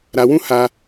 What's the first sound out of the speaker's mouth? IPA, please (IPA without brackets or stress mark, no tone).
ɾ